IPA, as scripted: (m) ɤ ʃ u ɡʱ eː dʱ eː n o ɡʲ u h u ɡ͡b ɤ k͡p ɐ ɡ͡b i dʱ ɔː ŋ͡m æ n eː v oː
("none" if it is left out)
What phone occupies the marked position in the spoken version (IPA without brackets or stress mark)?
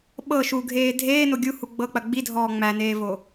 ɓ